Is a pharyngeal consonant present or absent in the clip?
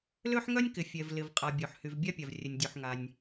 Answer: present